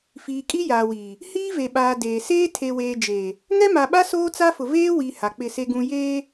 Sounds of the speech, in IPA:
f iː˨ kʼ i˦ j aː˨ w iː˨ | h iː˦ v e˨ ɓ aː˨ d eː˨ s eː˦ tʰ e˨ w eː˨ d͡ʒ eː˨ | ŋ ɛ˦ m a˨ ɓ a˦ s oː˦ t͡s a˦ f ʊ˨ v eː˦ w i˨ h a˨ k͡p ɪ˦˨ s e˦ ɡ ũ˦ j eː˦

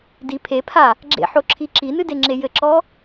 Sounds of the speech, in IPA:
d i pʰ e pʰ a | ɡ͡ǁ ḛ ħ o ǁʰ i ǁ i n ɨ d e ŋ͡ǁ e j ɘ ǁ ɔ

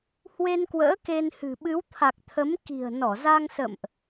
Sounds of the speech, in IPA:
h w e˧ n k w ə̰ː˧˥ k e˧ n h ɨ̤˨˩ ɓ ɨ˨˦ w t̪ʰ a˨˩ k̚ t̪ʰ ə˨˦ m k i̤˨˩ ə̯ n ɔ˧˩ z a˧ ŋ s ə̰˧˨ m ʔ

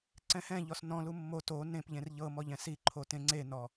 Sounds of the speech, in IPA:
ǀ ɛ̃ h ɛ̃ ʎ ɔ s n ɔ̃ l u mː o t o n ẽ p ʎ ẽ r ʎ ɤ m ɔ ʎ ɛ̃ s i ǃʰ o t ẽ ŋ͡ǀ e n ɔ

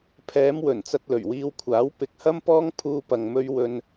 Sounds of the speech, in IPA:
pʰ ɛː˨˧ m w ɵ˨˩ n t͡s ɐ˧ t̚ l ɵ˨˩ ɥ w iː˧ w kʷʰ aː˨˥ w p ɪ˨ k̚ h ɐ˥ m p ɔː˥ ŋ pʰ uː˧ p ɐ˨ ŋ m ɵ˧ ɥ w ɵ˧ n

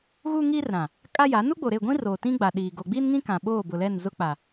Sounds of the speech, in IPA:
ɣ u˦ ŋ iː˦ r ɾ ã˨ | kʼ a˦ j a˨˦ n u˦ ɡ͡b o˨ ɾ e˦˨ ɡʷ ĩ˦ r oː˨ t ĩ˦ ɡ͡b a˨ ɗ iː˨ ɡ o˨ ɡ͡b i˦ n ŋ ĩ˦ k ã˨ ɓ oː˦˨ b ʊ˨ l ɛ˦˨ n z ʊ˦ k͡p a˨

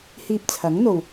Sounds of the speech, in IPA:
h iː˧ p̚ t͡sʰ ɐ˨˥ ŋ n̪ o˨ w

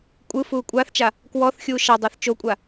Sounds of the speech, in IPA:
kʷʼ ɯ f uː kʷʼ a θ t͡ʃ a | k w ɔ θ xʲ uː ʃ a dˤ ɤ θ t͡ʃ o kʷʼ a

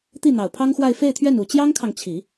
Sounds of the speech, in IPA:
t̪ i˥˩ n̪ ɑ˨˩ ʊ̯ pʰ ɑ˥ ŋ x w a˥˧ ɪ̯ f e˥˧ ɪ̯ t̪ʰ ɥ ɛ˥˩ n u˨˩ t͡ɕ j ɑ˥ ŋ kʰ ɑ˨ ŋ t͡ɕʰ i˨˩˦

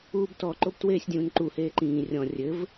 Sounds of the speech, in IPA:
uː b t ɔ ǃ o b t w eː sʲ dʲ ũ n ǃ u h eː ǃ ĩː rʲ ɔ̃ rʲ ɘ v

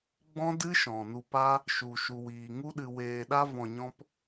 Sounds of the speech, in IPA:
ɡ͡b ɔ̃˦ d ɨ˦ ʃ ɔ̃˨ n u˧ p a˦ | ʃ u˧ ʃ u˧ w iː˧ ŋ u˦ ɗ ɨ˧ w eː˧ ɗ a˦ v ɔ̃˨ ɲ ɔ̃˧ p

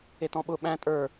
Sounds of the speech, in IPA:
e t ɔ̃ ɓ ʊ ɓ æ̃ tʼ ə˞

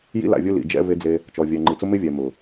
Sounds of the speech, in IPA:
j ḭ˦ l a̰˨ vʲ ʊ˦ l ḭ˨ d͡ʒ ɛ̰˦ v e˦ d͡z e˦ | t͡ʃ ɔ˨ vʲ ɛ˨ ŋ͡ǃ i˨ t͡s ʊ˦ m ɪ˦ vʲ ɛ˨ m ʊ˨

